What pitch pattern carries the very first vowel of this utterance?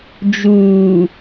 low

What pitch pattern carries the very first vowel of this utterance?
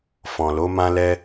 low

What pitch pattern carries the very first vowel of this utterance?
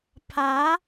rising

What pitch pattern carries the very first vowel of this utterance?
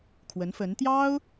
rising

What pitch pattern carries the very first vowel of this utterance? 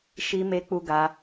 high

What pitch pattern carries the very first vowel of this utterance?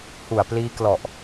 low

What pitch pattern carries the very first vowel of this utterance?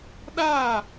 falling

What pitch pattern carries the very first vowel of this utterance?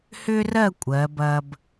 high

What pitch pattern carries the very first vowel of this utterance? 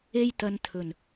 high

